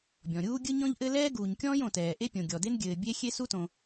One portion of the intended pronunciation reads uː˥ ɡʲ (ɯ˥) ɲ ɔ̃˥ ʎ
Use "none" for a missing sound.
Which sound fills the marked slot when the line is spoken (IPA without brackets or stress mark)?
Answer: ɯ˥